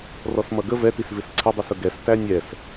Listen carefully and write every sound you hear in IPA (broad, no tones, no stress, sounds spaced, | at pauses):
r ɔ s m ʌ ɡ ə v ɛ t i s v ɪ s ǀʰ ɪ dˤ i s ʊ ɡ ɛ s t æ nʲ ɛ s